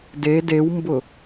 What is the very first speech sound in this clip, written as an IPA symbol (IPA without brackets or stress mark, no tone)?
d